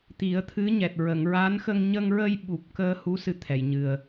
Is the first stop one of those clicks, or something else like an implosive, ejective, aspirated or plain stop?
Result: plain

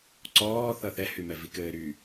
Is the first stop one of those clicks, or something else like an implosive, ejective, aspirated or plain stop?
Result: click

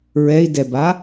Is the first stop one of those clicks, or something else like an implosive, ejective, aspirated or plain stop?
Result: plain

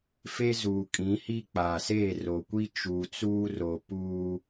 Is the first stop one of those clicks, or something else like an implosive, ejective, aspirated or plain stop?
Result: ejective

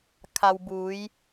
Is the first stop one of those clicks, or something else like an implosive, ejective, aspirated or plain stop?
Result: aspirated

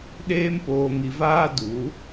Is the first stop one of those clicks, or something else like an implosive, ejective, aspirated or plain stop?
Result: implosive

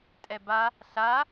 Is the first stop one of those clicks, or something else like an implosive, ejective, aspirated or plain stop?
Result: ejective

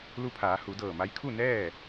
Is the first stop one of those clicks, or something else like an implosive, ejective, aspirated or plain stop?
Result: aspirated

